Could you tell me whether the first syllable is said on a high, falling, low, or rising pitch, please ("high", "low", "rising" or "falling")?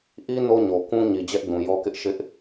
high